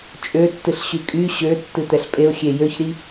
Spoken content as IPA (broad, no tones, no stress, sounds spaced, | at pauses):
t͡ʃʼ ø tː ɨ ɬ ɕ y kʼ y ɕ ø tː ɨ t̪ ɛ ɬ pʼ e ʊ̯ xʲ e j ø ç ɾ i